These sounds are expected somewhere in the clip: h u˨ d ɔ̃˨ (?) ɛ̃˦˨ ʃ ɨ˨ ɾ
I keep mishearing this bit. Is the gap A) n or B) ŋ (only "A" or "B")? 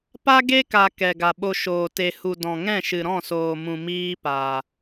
B